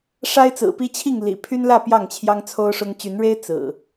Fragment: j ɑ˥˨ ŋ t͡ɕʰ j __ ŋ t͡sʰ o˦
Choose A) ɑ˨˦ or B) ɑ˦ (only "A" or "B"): B